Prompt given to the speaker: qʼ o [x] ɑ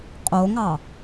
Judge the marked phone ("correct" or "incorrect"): incorrect